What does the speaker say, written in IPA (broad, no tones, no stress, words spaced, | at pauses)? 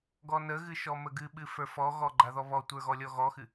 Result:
ɡɔnəɣɨ ʃɔməɡɨɓɨ fə˞fɔɣɔ ɡ͡ǃaðɔβɔtʷə˞ ɣɔlʲɔɣɔxɨ